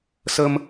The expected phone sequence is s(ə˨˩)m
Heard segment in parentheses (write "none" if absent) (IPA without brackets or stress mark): ə˧